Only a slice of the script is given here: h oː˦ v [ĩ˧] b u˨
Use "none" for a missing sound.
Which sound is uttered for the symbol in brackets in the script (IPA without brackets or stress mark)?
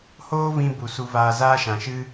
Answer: ĩ˧